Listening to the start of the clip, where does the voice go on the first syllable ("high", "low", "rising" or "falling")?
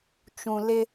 low